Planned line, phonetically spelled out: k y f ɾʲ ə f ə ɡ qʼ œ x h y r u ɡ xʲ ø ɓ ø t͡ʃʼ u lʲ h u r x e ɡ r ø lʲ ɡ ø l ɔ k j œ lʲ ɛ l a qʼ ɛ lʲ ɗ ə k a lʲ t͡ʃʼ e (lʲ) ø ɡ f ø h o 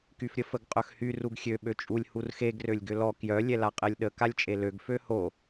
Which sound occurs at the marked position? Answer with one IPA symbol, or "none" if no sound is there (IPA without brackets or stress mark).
l